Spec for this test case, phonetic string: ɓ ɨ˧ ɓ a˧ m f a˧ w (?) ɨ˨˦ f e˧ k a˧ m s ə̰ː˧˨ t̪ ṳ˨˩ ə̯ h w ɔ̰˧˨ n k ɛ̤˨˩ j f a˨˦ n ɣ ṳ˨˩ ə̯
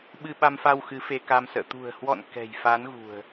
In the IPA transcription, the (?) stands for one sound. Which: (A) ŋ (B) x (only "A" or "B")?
B